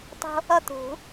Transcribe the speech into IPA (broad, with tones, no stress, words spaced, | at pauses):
tˤo̤˥ | ʌ˥˩t̪ṳ˨˩˦